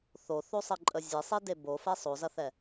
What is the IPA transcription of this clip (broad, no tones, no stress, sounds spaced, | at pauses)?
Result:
θ o θ o sˤ ɘ ǃʼ ə zʲ e sˤ i d e b o f ɛ sˤ o z ɐ θ ɛ